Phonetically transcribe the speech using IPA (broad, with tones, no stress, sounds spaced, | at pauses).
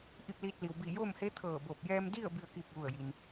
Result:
ʔ i˥˨ p̚ l iː˧ t̚ l i˩ w b iː˧˩ j oː˥˨ m h e˧˥ t̪ʰ ɤː˧˩ b o˧˩ p̚ j ɛː˧ m d i˥˨ ə̯ b i˥˨ ə̯ k iː˥˨ k̚ ʋ u˥˨ ə̯ j i˧ n